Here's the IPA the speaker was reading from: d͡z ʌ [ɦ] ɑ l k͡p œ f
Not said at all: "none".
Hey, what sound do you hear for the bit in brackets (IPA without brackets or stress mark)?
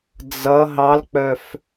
ɦ